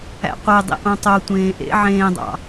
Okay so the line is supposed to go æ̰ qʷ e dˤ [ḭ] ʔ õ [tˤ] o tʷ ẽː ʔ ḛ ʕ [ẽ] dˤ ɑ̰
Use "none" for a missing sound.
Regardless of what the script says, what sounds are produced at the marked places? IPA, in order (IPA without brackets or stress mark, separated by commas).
ḭ, tˤ, ẽː